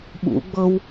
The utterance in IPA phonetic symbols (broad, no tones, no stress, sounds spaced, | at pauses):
ɓ ṵ ɡ͡b ɤ w